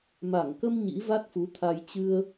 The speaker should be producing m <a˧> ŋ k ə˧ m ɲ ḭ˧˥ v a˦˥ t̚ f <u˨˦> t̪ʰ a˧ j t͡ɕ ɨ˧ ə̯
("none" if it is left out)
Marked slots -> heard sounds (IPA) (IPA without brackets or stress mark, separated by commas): a˧˩, u˨˦